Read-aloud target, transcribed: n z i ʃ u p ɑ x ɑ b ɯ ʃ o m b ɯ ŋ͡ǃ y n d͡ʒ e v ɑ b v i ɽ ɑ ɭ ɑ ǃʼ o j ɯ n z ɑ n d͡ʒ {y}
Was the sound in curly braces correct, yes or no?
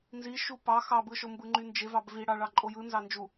no